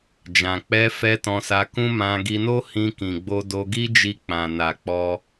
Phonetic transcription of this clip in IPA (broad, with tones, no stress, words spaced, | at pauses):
d͡ʒã˨k͡pɛ˧fɛ˧ tɔ̃˧sa˧kũ˦ mã˧ɡi˧no˦ hĩ˧kĩ˨ɡ͡bo˧ do˧ɡi˦d͡ʒi˧ k͡pã˨na˨ k͡pɔ˧